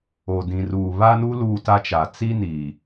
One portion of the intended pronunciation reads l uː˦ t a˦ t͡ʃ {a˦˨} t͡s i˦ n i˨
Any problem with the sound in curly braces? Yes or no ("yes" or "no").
yes